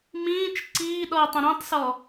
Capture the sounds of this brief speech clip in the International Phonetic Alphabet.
mĩːt͡ʃ ǀiːɗɔi̯tˤə̃ ɾĩtˤsɔ

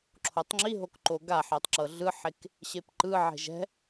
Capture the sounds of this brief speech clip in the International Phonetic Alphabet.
ǁʰotˤŋ͡ǁiɦok ǃoɡaħetˤ ǁɤɮɯħek | ɕepǃɯʕe̤ ʒɛ̤

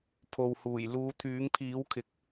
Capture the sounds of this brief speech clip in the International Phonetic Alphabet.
pʰo˨whuː˨˩j luː˨˧t̪ʰyː˨˥ŋpʰiː˨˥wkʰɪ˨˥k̚

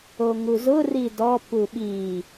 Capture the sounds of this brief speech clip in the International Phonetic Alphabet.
oŋuzʊ ridɔ puɓi

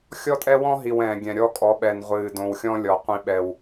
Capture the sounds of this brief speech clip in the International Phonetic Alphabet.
xʲɔ˦tʼɛ˦wɔ̃˦ɦi˨w ɛ̃ː˨ɡʲɛ̃˨ ɾʲɔ˦kʼɔ˨˦ɓɛ˨nʁʷɨː˨ dõ˨wxʲɔ̃˦lʲɔ˨ qʷĩ˦ɓɛ˦w

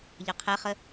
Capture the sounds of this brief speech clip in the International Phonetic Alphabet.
ʎɑqʰɛχə

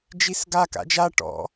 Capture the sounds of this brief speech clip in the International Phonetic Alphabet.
d͡ʒisɡa ka̰d͡ʒa ʈɔ̰

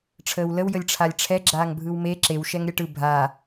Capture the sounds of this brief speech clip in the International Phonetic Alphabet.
ʈ͡ʂʰəːwləw jəlʲʈ͡ʂʰalʲʈ͡ʂʰɛ ɡ͡ǁaːŋbʱɯwme ǁew ʃɛŋɾʲɛʈɯ bʱa

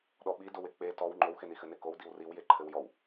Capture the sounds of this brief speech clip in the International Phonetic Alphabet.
ɗɔɓidowe k͡pe tɔw ŋ͡ǃowxenixɘ nekow diwriwje ǃʰɘwjɔw

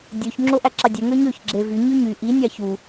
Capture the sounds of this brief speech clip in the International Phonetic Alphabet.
dʲøç ŋ͡ǁoʔæǁɑdʲø ŋøɲøç ɡ͡ǁevy ɲyɲy ʔi nʲɑçu

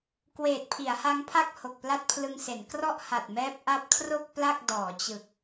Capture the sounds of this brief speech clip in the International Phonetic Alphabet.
kweː˨˩t̚pʰi˩˦a̯ha˦˥ŋpʰa˥˩k̚ ho˨˩k̚pla˥˩t̚pʰlɯ˧ŋse˩˦n krɔ˥˩ʔha˨˩t̚mɛː˦˥p̚ ʔa˦˥p̚kʰro˥˩k̚ pla˥˩k̚ dɔː˩˦t͡ɕɯ˨˩k̚

